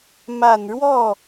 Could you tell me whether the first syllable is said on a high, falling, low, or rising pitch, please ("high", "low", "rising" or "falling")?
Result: low